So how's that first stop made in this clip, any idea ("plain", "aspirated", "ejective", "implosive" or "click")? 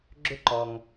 click